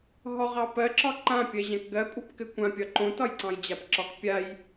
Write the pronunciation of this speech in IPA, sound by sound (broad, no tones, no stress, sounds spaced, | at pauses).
ɦ ɔ ʁ ɑ p ɜ ǁ ɒ ǃ ã pʲ ɜ ʑ ã k ɡ ɜ kʷʼ ɜ p k ɘ kʷ ã pʲ ɒ ǃ õ t ɒ j ǀ ɑ̃ j d͡ʑ a p ǁ ɒ k pʲ a j